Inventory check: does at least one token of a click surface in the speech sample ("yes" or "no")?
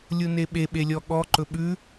yes